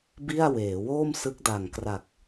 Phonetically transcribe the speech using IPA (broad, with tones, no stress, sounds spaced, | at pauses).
b i˥˩ a̯ w eː˩˦ w oː˥˩ m s ɯ˦˥ k̚ d a˨˩ ŋ k r a˨˩ k̚